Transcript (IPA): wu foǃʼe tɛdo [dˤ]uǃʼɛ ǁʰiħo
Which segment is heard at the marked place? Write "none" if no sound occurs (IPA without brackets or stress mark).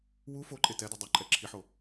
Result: dˤ